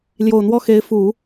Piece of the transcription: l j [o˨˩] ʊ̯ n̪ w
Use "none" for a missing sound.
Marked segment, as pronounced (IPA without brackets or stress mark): o˨˩